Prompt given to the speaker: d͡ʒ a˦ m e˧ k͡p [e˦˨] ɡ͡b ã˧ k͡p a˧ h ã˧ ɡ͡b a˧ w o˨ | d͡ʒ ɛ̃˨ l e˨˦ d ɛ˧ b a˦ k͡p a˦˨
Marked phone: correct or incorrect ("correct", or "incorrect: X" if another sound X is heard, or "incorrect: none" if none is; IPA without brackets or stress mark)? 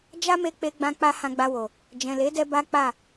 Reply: incorrect: e˧